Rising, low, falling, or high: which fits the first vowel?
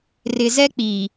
low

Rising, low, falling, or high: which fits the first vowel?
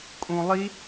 low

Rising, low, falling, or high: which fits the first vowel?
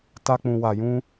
high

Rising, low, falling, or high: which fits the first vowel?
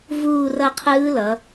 falling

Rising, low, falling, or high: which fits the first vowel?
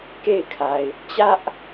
falling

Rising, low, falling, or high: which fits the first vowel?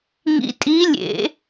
rising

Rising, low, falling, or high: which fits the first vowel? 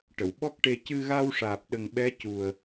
low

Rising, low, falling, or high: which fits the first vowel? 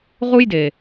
high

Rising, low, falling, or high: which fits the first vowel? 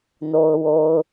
low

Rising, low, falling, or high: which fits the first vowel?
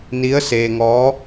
rising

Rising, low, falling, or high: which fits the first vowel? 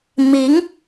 rising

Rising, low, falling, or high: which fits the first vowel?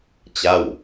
falling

